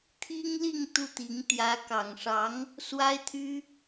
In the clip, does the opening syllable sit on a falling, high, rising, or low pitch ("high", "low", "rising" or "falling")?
high